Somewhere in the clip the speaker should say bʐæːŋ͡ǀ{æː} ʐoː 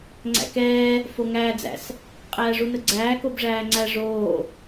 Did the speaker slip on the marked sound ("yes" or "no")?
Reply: yes